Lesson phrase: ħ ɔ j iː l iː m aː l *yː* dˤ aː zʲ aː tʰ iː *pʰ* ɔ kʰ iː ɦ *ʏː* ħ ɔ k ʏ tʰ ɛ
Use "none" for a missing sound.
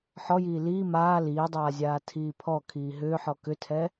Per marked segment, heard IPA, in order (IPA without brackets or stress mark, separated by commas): iː, pʰ, ʏː